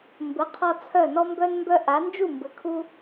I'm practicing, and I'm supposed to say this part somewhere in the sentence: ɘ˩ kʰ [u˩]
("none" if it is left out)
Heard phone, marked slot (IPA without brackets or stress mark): u˧